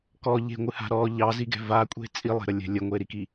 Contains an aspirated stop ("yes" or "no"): no